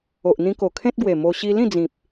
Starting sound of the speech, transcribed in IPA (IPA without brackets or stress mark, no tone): o